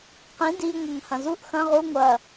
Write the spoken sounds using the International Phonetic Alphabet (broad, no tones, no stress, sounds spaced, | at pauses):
q ĩ d i ŋʷ ɐ ŋ h ɐ̃ z u ʔ x ɐ̃ ʁ u ŋʷ ɐ